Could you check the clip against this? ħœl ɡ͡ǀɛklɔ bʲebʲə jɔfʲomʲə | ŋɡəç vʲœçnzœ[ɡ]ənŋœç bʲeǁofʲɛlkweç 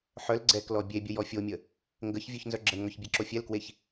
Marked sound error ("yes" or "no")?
yes